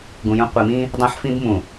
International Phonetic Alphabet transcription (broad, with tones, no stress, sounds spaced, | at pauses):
ɡ ũ˨ j ũ˦ qʷ i˨ m ĩ˦ | dˤ ã˦ ħ f ĩ˦ b m ũ˨